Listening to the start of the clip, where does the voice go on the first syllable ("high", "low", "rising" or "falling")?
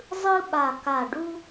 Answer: high